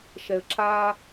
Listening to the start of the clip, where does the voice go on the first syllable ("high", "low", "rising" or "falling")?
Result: low